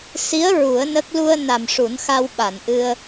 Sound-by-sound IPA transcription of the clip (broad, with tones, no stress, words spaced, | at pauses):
si˧˥ə̯ ɹu˨˩˦ə̯nə˦˥k̚ lu˧ə̯ na˨˩mʂu˨˩˦nxa˧w ɓa˨˩˨nʔɨ˧ə̯